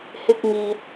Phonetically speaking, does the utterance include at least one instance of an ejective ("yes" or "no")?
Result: no